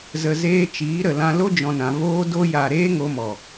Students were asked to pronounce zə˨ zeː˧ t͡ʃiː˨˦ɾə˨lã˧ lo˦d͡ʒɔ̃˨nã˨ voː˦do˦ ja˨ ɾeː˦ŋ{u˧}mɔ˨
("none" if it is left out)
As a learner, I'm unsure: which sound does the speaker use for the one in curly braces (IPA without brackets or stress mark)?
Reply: o˧